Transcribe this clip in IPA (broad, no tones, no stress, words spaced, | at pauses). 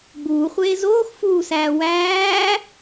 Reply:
ɡ͡buːχʷeː zoːxfuːsæː wæː